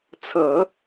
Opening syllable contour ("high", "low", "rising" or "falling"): low